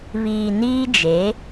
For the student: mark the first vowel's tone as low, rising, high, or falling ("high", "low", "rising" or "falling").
low